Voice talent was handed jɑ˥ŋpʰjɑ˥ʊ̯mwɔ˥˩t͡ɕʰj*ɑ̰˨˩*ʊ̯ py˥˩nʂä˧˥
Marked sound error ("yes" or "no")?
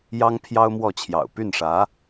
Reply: no